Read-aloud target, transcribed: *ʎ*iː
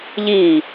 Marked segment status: correct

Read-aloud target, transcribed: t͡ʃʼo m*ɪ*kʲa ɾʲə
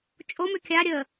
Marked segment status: incorrect: ʏ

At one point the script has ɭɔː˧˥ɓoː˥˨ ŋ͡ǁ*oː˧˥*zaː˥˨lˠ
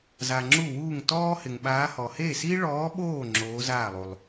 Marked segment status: correct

